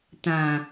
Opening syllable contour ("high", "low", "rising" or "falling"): low